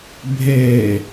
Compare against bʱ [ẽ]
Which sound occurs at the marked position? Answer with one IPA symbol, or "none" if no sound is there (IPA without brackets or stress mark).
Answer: e